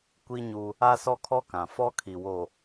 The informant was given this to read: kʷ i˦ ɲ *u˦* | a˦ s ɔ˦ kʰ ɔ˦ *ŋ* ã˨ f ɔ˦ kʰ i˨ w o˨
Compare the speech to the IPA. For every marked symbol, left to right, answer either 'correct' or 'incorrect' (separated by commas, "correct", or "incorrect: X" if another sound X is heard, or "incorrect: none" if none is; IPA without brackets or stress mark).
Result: correct, incorrect: k